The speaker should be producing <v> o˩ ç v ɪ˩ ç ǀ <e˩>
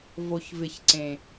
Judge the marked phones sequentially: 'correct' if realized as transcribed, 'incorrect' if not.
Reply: correct, incorrect: ẽ˩

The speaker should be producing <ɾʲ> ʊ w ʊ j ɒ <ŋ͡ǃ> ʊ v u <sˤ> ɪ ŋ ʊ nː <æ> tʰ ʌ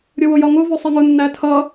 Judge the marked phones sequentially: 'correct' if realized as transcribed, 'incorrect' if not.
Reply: correct, incorrect: ŋ, correct, correct

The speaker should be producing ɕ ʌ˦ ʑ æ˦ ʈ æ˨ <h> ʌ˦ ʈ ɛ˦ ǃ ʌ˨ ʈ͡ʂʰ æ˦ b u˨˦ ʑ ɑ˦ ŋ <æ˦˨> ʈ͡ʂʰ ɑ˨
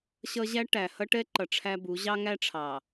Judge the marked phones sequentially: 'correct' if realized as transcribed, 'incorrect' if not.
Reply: correct, incorrect: æ˦

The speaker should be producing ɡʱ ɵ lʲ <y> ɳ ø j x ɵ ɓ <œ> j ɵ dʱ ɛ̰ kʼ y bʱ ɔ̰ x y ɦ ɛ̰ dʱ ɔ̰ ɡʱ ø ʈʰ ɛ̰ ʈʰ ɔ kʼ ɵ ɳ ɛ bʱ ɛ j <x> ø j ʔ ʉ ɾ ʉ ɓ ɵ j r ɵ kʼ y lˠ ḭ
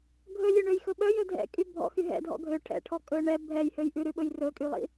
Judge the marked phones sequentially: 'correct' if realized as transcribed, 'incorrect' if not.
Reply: incorrect: ø, correct, incorrect: h

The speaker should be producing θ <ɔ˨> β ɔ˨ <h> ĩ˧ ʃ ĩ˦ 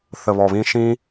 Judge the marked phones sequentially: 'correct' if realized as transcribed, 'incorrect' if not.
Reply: incorrect: ə˨, incorrect: β

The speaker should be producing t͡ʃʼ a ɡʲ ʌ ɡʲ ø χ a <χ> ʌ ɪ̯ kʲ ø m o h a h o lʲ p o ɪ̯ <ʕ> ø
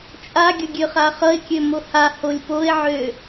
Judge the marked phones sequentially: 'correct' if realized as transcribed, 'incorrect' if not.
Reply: correct, correct

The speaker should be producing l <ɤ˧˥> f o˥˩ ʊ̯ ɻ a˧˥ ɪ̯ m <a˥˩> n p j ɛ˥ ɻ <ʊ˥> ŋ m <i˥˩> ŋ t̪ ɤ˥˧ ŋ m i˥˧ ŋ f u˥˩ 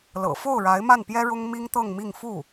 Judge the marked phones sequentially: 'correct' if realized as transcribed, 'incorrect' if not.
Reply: incorrect: ɤ̰˨˩, correct, correct, incorrect: i˥

